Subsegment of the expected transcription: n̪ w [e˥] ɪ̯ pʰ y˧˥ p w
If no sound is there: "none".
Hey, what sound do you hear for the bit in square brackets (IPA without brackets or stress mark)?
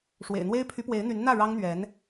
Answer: e˥